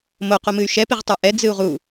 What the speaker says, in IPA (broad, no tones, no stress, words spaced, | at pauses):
moqomɨy̯ ʃɛpiʁtˤə˞ ʔɛ d͡zɨu̯ʁu